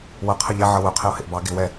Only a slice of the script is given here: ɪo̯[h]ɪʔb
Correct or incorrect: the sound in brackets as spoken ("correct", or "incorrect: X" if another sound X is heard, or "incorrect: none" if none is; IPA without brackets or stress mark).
correct